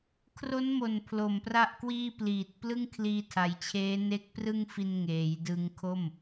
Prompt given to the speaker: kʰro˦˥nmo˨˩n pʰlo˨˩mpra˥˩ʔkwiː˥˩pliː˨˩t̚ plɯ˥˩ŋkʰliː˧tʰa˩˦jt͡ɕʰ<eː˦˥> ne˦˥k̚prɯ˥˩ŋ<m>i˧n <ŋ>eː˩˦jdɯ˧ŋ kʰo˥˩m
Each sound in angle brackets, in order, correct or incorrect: correct, incorrect, correct

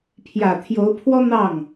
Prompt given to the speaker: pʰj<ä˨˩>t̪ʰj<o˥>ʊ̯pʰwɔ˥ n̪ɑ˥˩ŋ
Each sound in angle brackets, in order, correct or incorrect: correct, incorrect

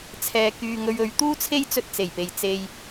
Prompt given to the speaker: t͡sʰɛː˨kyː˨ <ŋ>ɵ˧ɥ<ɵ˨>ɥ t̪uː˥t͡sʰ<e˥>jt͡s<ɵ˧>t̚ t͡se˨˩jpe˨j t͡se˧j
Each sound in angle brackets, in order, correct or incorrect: correct, incorrect, correct, correct

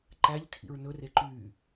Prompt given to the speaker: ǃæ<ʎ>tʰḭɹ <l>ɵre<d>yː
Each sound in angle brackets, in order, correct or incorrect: correct, incorrect, incorrect

